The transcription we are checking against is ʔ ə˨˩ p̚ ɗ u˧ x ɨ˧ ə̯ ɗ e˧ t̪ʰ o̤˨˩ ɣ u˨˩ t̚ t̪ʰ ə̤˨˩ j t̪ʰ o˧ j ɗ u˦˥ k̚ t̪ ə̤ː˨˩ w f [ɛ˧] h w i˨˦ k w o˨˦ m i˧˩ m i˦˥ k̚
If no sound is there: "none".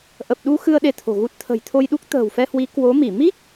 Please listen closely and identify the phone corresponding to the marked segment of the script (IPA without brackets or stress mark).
ɛ˧